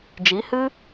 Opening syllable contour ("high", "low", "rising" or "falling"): rising